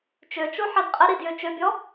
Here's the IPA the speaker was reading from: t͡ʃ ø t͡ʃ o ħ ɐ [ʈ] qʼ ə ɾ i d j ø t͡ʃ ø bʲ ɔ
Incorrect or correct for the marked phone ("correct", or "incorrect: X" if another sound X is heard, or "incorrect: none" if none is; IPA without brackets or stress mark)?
incorrect: d